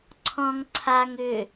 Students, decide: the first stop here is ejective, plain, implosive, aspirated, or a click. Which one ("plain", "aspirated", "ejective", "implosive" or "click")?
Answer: click